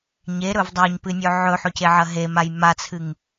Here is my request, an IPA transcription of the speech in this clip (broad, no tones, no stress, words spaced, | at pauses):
ɲeɾɵv dˤaɲpɨnʲɵ ʕɵħɵceʕɐ ɦemaj mat͡sʰɨŋ